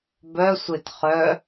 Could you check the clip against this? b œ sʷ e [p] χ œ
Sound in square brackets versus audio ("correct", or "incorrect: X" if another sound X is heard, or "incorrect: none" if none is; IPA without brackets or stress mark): incorrect: t